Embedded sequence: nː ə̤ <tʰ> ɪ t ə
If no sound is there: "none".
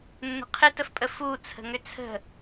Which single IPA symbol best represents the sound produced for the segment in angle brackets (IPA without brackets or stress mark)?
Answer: qʰ